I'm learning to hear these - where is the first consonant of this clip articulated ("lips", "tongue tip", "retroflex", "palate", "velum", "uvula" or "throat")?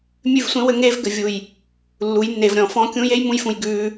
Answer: lips